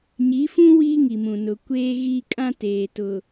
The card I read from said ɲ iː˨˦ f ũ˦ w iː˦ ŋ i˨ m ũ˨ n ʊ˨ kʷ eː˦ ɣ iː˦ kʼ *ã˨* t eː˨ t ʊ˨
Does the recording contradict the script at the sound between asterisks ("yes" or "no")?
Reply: yes